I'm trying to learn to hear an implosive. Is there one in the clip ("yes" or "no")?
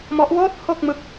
no